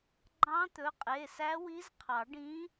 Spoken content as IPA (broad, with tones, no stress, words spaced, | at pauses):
ɡ͡ǃɑ̃˧˥t̪ɵ˩˧˩qʼe˩˧˩sæ˧˥ wi˧˥zqʰɑ˨˩˦ɖĩ˧˥